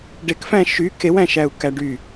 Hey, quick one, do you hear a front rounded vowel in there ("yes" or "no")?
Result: yes